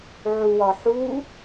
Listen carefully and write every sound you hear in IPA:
ʕuwɒħu

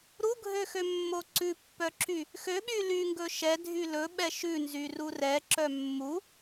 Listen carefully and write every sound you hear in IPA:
ɾuɡʱøxømːo ǀʉpːœǁy | xøɓy lyŋɡɵ ʃɛdʱy lɵɓɛ ʃʉnzyru rɛǁœ mːu

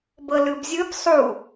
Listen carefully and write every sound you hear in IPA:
bɤlɯbzʲɯb sˤu

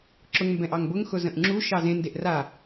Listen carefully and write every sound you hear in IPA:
ǁʊŋmbɛ̃ʔ ɑŋbʊŋxʊ zə̃ʔŋ͡ǁu ʃɑzẽndeʔ ra

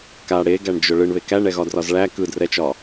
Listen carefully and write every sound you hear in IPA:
ka ɽeɡæɳd͡ʒʊ ɭɯɳβe kæɳɛɣɒdrɒz ɭæ kɯdrɛt͡ʃɒ

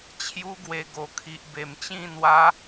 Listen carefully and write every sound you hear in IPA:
t͡ɕʰju˦ ɡwe˧ ɡo˨˩kʰi˨ʔ be˨˩mt͡ɕĩ˥˧ n̪wa˦

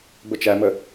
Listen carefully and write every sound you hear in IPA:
bət͡ʃæmə

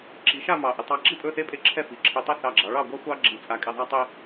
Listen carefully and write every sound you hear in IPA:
ǁi˩˧ʃa˥˧ mɑ˧˩ʔɘ˧˩tˤɑ˥˧ ǁi˥˧pʼɵ˥˧θe˥pʼe˥˧ ǁʰɛ˥fi˩˧ ǁʰɘ˧tˤɛ˥˧ θɑ˧˩ɡ͡ǁɑ˩˧ ɭɑ˥˧ɡʷa˥xʷɑ˥ ɡ͡ǁi˧˩t͡sʼa˧ kʼe˧ðˤa˥ tˤe˥

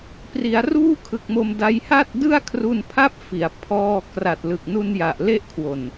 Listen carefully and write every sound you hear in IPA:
pri˩˦a̯ruː˥˩kʰɯ˨˩k̚mo˧m da˧j ha˥˩t̚dɯ˥˩a̯kʰru˧npʰa˥˩p̚ fi˩˦a̯ pʰɔː˧ kra˨˩t̚ lɯ˨˩k̚nu˧nja˨˩ʔ le˥˩ʔkʰwo˨˩n

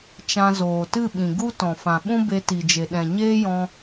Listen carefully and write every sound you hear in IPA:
t͡ʃã˧zoː˨tɨ˦˨ɓĩ˨ ɡu˦ tɔ̃˨fã˨ɓũ˦ be˧ti˨d͡ʒe˨ ɗɛ̃˨ɲeː˦jɔ̃˧

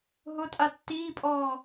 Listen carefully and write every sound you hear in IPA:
ɦʊtʼa tːiːpʼɔː

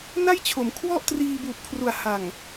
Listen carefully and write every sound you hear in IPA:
na˥˩jt͡ɕʰo˩˦m kʰwɔ˥˩ʔ triː˧buː˨˩p̚kʰru˨˩a̯ ha˨˩ŋ

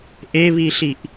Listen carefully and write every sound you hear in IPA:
ʔeβiɬiʔ

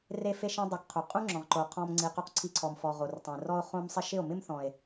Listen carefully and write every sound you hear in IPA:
re˧fe˧ʃẽ˧ dˤe˧kqʰu˨ qʼũ˦ŋ͡ǁɔ̃˨ʁǃo˨ qʰɔ̃˧m ŋ͡ǀi˧qu˦q ǀʰi˧ǀʰɔ˨mfɔ˨ ʁo˨rtˤẽ˨rɔ˦o̯ χõ˧msˤɪ˧ ʃɪ˦˨o̯mɪ˦mθɔ̃˨e̯

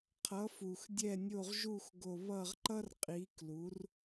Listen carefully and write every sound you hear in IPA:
qʰʌ˨˥fu˨˩x dʲɛ˦˨nʲo˦˨ʁʒu˦˨x ɡo˦˨ βʌ˦˨ʁǃʌ˥r qʼi˨˥ klu˨˥r

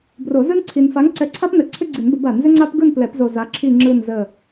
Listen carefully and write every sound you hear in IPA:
bro˨˩˦zɯ˦nǀʰi˨n fa˨˥ŋ ǀɛ˨˥ǀʰa˦pnə˨˩˦ ǀʰʏ˦ɡ͡ǀi˨˩˦nbə˨˩˦b a˨˩˦nzʏ˦ ŋ͡ǀa˦pɡɯ˦˨nplɛ˨˩˦pzo˨ za˨˥ǁʰi˦˨ŋ͡ǁɯ˦˨n zə˦˨

